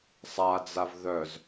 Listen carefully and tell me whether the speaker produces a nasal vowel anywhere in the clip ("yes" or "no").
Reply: no